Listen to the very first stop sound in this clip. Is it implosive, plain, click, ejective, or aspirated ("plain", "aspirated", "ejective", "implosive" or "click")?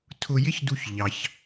aspirated